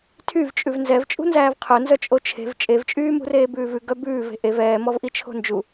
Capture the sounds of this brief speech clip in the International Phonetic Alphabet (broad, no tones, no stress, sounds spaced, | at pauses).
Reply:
tʰ y v t͡ʃʼ ʉ v n z ɛ v t͡ʃʼ ṳ n z æː v qʰ œ n z œ t͡ʃʼ o t͡ʃʰ e̤ v t͡ʃʼ e v t͡ʃʼ yː m ṳ r eː b ʉː v ʉ ɡ œ b ʉː v e̤ ʔ e v ɛː m ɔ v ʔ i t͡ʃʰ o̤ n d͡ʒ u